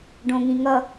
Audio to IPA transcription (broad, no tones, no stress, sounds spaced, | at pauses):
ɖ õ ŋ ĩ ŋ ʌ